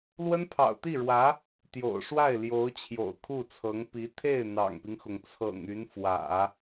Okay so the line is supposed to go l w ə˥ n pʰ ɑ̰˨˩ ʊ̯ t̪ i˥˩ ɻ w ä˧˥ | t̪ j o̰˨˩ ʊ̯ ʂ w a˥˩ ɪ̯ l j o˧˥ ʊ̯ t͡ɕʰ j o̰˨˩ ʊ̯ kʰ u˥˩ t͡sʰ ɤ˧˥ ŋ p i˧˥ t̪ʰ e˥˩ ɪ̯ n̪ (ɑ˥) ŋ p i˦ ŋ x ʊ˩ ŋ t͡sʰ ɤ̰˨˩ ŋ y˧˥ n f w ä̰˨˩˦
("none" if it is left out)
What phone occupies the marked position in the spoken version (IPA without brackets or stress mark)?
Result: ɑ̰˨˩